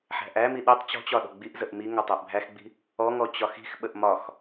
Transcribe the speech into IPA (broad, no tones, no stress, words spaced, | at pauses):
ħæ̤ʔæmi ɗitˤ t͡ɕɔ̤t͡ɕɒ ɗɔ̤ɡ͡biʔzəʔ mi ŋɒtˤæʔbʱæxɡ͡bi̤ | ɔŋɔ t͡ɕɒxi̤xɓəʔ mɒx